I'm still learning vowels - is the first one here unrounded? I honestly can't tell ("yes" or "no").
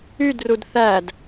no